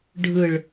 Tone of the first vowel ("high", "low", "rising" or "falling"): low